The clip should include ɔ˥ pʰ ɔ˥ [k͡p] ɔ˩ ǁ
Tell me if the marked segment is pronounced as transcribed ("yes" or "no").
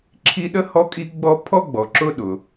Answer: no